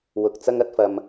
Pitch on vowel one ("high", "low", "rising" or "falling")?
low